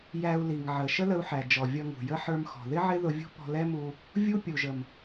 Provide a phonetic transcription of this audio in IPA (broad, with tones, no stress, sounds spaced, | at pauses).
j æ˧ u̯ l i˨ ŋ ʕ ə˨ ʃ ə˦ l ə˧ u̯ ħ æ˨ d͡ʒ ɔ˨ vʲ ʌ˧ ŋ ṳ˨ j ə˦ ħ ə˞˧ m x ɔ̤˨ ð ɪ˦ ʕ ɪ˦ ð ʊ˧ vʲ ṳ˦ p ɔ̤˧ l ɛ˦ m u˧ | vʲ u˦ pʲ u˨ ʒ ə˨ m